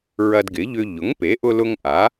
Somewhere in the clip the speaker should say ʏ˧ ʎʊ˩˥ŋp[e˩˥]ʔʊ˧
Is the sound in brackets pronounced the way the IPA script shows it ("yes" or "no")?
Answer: yes